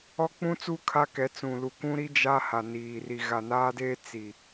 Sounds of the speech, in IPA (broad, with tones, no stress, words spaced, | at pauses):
ɔ˦k͡pũ˦t͡su˦ kʰa˦kɛ˨˦ t͡sũ˨lu˨ kʷũ˦ɾi˦ d͡ʒa˦ha˨niː˨ ri˨ɣa˨naː˦deː˦ t͡si˨